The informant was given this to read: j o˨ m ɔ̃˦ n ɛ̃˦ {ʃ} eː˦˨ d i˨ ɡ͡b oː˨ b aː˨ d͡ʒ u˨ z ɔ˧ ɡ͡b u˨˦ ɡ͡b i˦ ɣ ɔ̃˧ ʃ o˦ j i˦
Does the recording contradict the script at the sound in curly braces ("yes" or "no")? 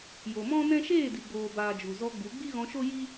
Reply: no